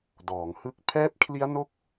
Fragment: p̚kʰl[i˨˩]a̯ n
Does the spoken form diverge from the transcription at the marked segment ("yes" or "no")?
yes